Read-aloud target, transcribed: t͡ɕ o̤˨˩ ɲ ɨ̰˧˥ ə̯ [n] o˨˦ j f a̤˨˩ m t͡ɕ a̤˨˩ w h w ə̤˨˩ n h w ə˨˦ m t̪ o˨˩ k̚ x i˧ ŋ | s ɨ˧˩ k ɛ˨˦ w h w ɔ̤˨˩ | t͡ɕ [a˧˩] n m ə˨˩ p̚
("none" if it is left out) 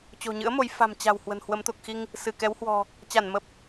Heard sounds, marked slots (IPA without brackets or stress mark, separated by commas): m, a˧˩